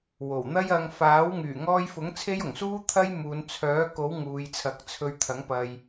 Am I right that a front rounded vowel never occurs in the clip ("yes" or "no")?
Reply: no